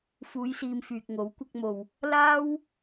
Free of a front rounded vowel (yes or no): no